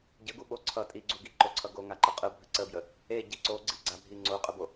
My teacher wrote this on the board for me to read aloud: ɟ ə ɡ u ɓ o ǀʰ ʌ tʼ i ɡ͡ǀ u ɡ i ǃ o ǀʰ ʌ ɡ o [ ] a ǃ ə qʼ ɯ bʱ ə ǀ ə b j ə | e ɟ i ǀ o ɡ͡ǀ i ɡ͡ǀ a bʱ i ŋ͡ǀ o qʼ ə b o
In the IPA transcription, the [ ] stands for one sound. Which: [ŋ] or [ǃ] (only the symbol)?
ŋ